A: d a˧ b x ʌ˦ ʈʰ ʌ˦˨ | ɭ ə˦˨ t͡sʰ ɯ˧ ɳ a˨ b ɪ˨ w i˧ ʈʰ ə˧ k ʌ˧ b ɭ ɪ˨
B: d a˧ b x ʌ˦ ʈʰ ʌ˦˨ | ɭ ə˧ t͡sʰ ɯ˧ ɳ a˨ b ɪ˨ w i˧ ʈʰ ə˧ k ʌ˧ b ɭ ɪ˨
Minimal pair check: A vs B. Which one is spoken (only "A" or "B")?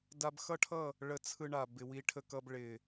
B